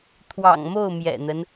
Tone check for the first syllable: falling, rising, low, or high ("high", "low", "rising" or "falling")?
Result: low